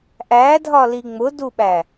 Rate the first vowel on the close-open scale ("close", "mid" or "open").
open